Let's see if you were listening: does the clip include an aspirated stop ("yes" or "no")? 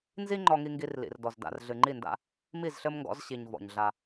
no